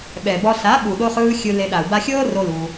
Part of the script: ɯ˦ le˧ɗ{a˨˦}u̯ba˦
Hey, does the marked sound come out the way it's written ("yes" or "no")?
no